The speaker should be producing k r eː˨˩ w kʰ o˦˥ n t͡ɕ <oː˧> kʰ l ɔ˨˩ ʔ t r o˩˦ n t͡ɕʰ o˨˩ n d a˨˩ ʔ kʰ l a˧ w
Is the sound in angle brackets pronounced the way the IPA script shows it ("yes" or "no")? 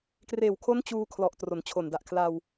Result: no